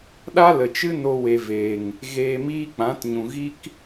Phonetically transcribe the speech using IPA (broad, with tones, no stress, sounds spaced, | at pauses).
ɗ a˦ l ə˨ t͡ʃ ɨ˦ n o˦ w e˧ v eː˨ ŋ | ɣ eː˧ m iː˦ k͡p ã˨˦ t ɲ ũ˨ ɣ i˦ k